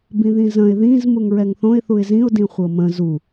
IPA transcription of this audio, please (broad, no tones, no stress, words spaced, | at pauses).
bĩðĩzə̃ɪ̯ ðĩz muŋɹɛŋθõɪ̯ θuɪ̯zĩʊ̯ dĩχʷɤmə̃ zu